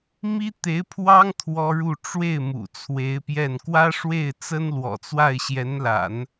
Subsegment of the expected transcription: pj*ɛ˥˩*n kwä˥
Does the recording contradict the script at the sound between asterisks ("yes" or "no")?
no